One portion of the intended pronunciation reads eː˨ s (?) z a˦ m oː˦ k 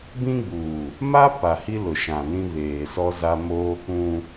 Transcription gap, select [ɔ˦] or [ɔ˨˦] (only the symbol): ɔ˦